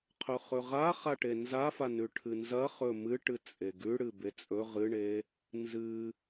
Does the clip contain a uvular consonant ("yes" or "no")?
yes